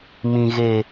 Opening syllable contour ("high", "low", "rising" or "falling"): low